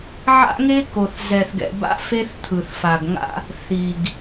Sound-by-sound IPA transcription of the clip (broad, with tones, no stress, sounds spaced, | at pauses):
ʕ a̰˦ ŋ e˦ k o˨ θ z ɛ˨ θ ɡ ɛ̰˨ b a̰˦ f e˦ θ t̪ʰ ɯ˨ θ f a˨ ɡ ŋ a̰˦ | θ i˨ ɡ